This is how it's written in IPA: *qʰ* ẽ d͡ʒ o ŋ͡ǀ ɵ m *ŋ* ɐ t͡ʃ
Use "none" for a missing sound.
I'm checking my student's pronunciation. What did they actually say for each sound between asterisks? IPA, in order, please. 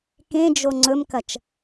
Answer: k, k

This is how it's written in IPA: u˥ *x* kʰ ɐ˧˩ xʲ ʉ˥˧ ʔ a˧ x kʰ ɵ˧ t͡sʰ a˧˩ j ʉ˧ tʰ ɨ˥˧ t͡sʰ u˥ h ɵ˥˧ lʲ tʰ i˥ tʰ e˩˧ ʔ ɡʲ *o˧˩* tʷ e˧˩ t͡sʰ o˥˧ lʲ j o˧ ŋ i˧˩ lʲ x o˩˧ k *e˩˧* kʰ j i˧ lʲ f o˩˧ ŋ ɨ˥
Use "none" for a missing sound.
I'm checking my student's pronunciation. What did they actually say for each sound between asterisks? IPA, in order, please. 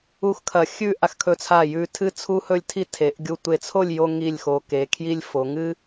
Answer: x, u˧˩, e˩˧

